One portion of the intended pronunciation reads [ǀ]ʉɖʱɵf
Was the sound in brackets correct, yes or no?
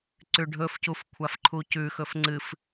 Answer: yes